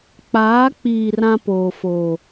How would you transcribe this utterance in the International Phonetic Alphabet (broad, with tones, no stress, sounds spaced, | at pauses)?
k͡p aː˨˦ k͡p iː˨ r ã˦ p oː˨ f oː˨